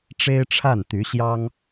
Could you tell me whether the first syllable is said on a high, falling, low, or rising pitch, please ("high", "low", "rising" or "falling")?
high